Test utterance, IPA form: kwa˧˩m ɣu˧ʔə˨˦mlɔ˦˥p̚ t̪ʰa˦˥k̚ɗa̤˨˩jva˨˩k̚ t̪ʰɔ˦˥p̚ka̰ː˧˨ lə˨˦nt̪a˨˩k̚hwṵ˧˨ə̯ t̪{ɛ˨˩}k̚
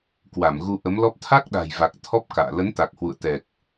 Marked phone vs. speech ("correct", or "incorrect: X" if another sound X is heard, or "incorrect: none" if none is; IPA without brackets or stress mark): correct